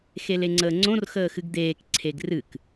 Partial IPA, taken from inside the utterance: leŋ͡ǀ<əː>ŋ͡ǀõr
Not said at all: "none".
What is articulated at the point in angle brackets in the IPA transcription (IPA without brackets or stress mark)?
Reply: əː